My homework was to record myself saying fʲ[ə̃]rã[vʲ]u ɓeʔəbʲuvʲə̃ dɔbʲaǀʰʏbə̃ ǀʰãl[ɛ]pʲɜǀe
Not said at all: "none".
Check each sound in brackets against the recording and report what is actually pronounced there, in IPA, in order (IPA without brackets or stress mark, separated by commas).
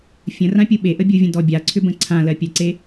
ə̃, pʲ, ɜ